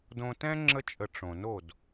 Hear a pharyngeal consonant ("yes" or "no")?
no